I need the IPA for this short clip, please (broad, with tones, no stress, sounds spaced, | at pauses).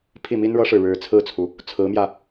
pʰ i˥˩ m i˥ n ɻ ɤ˥ ʂ ɻ̩˨ ɻ ɻ̩˧˥ t͡sʰ ɹ̩˥˩ t͡sʰ u˩ | t͡sʰ ɹ̩˧˥ m j ä˧